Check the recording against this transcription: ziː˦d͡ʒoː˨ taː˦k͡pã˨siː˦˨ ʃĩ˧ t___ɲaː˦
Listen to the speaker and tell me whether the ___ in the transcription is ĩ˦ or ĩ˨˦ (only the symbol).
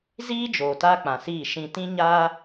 ĩ˦